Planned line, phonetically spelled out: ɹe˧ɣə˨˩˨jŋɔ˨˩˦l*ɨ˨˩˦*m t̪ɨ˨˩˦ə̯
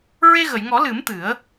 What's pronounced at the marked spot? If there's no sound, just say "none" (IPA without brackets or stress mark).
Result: ɨ˨˩˦